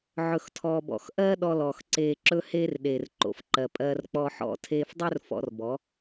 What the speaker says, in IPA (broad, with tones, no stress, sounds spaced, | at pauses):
ʕ ɵ˨ x tʰ ɔː˨ b ɔ̰˨ x ʔ ɜː˦ ɗ ɔ˧ l ɔː˨ x ǀ eː˨ ǁ ɵ˦ h eː˦ r ɗ eː˨ r ǃ o̰˨ f ǃ ɜ˨ pʼ ɜː˧ r k͡p ɔ˧ ħ ɔ̰˧ tʰ eː˧ f dˤ ɵ˦ r f ɔ̰˧ r b ɔ˨˦